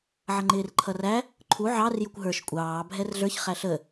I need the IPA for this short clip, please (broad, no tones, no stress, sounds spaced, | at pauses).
ʕ ʌ ŋ͡ǃ ɪː r ǃʰ ʌ r æ | ǃʰ u ʕ ɑ r j ʊ kʷ ɦ ə˞ ʃ kʷʼ ɑː bʱ ɛ r ɮ ə˞ ç χ æ ɬ ə